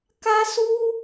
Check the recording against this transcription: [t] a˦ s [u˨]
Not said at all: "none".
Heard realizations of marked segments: k, u˦

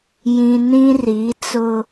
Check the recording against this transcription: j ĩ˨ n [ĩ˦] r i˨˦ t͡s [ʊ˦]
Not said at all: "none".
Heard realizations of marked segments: ĩ˦, ʊ˦

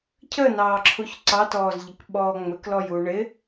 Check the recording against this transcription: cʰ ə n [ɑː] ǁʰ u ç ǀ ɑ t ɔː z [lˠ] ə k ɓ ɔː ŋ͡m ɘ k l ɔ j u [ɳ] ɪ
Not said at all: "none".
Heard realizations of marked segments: ɑː, ʎ, ɳ

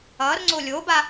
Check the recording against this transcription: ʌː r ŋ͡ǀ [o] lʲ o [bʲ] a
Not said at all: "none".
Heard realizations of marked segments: o, b

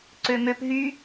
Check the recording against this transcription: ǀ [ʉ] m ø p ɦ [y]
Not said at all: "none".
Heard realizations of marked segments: ø, y

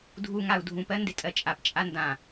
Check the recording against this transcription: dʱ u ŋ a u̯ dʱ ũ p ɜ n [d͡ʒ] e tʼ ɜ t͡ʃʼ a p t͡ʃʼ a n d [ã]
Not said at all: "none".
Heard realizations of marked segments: d, ã

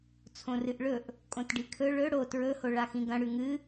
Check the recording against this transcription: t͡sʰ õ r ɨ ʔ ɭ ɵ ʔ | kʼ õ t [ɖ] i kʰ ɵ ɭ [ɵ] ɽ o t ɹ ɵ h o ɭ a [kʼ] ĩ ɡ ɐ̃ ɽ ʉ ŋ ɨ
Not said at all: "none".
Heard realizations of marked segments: ɖ, ɵ, x

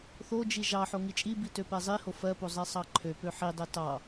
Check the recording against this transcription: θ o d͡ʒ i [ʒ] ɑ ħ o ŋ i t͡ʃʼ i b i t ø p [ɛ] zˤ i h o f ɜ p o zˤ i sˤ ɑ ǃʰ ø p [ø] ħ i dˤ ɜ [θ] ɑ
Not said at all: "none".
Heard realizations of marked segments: ʒ, ɛ, ø, t

